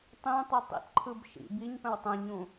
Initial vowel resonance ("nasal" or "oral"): nasal